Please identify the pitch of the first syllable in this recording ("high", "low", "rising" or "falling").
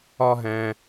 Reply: high